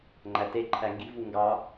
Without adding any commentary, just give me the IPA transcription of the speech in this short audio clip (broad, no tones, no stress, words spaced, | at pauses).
ŋ͡ǃæte ǃʰæŋɡi̤ vuŋɡɑ